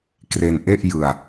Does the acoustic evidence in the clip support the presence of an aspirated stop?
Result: no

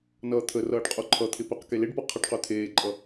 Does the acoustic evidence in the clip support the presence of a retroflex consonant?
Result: yes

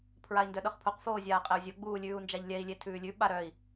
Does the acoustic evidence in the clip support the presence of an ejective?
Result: yes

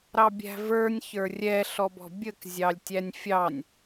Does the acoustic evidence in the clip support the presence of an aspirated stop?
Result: no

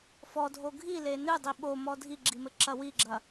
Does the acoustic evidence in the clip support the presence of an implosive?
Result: yes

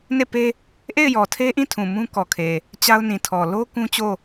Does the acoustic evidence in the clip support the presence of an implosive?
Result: no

